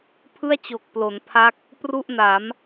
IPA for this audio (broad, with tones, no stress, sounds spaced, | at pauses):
pʰ ɯ˥˩ a̯ t͡ɕ o˨˩ k̚ p l o˩˦ n pʰ a˦˥ k̚ | p r u˥˩ ʔ n a˩˦ m